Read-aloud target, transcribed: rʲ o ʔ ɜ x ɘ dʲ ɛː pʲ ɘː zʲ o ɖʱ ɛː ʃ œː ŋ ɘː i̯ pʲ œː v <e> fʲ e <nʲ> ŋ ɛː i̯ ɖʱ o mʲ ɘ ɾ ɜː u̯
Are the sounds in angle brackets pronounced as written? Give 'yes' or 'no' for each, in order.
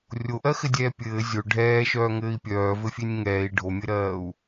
no, yes

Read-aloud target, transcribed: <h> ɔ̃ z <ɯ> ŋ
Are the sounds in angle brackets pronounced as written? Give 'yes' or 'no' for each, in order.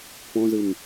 no, yes

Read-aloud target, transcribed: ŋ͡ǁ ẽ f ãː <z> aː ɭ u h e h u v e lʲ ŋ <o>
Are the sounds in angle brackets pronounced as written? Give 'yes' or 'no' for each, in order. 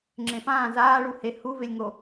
yes, yes

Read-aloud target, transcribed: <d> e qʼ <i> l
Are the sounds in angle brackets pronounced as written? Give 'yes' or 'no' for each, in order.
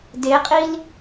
yes, yes

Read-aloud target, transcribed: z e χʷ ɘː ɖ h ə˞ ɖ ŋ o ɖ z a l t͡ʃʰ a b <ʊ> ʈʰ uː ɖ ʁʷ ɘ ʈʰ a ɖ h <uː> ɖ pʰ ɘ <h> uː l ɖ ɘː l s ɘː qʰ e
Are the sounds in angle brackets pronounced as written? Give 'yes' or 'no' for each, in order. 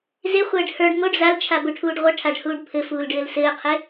no, yes, no

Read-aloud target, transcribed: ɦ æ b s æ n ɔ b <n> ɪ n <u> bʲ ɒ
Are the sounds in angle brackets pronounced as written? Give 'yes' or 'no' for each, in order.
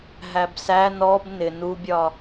yes, yes

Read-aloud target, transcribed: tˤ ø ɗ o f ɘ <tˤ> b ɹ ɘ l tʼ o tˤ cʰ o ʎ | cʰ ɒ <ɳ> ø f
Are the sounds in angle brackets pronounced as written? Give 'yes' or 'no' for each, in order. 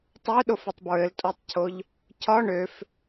yes, yes

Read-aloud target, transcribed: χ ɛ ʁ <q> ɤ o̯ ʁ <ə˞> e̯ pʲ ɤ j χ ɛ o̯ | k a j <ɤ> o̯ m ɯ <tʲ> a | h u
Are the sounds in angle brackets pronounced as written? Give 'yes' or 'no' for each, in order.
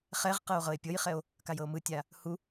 yes, no, yes, yes

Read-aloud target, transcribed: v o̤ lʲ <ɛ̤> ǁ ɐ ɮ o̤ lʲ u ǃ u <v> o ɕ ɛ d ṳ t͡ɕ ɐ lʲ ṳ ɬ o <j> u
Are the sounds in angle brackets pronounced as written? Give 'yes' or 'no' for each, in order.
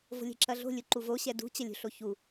yes, yes, no

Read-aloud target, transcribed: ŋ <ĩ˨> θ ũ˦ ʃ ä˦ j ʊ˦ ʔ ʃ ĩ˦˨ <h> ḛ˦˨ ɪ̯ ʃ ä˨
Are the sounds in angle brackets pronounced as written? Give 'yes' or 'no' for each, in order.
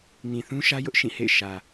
yes, yes

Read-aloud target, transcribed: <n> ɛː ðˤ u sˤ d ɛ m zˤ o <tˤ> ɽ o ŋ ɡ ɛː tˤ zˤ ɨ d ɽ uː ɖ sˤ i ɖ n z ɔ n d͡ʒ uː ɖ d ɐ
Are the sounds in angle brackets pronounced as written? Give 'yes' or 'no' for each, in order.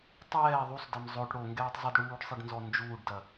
no, no

